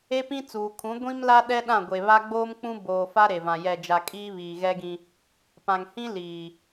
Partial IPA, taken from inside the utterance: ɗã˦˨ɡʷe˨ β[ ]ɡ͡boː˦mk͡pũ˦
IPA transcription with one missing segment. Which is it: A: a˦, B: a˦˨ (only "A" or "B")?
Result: A